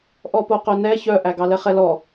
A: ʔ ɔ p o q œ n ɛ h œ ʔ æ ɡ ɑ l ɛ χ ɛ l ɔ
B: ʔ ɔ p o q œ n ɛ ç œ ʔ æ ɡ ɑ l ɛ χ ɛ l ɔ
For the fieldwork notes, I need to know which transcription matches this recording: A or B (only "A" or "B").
B